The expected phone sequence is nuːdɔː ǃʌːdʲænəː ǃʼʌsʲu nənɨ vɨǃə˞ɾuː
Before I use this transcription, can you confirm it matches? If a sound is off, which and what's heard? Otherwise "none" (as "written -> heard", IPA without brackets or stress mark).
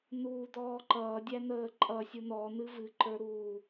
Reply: ə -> ɔ